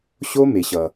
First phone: ɕ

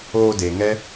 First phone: oː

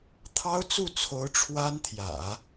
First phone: t̪ʰ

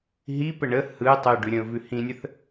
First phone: ɦ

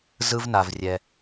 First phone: z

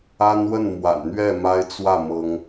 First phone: a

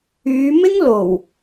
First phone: yː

